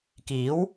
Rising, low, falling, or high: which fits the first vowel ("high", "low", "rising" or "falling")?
rising